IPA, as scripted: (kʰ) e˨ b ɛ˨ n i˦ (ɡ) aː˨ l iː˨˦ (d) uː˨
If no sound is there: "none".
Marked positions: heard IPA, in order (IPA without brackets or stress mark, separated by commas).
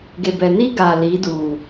ɡ, ɡ, d